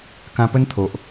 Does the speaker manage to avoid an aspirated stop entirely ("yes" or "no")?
no